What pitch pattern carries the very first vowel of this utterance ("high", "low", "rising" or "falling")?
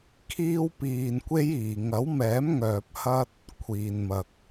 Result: high